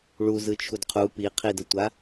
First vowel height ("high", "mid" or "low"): high